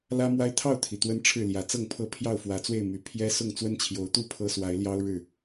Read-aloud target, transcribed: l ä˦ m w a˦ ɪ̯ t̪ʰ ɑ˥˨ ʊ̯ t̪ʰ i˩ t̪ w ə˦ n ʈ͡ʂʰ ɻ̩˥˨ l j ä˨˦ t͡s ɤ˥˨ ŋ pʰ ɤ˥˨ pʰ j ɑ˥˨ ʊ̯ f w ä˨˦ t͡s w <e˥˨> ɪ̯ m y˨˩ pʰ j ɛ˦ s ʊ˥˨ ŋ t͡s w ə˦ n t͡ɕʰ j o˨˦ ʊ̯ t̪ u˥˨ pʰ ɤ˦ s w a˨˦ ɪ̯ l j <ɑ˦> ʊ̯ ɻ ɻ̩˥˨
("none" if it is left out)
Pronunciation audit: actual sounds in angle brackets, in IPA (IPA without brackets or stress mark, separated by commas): e˥˨, ɑ˦